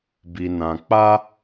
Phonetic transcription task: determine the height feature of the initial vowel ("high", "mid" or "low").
high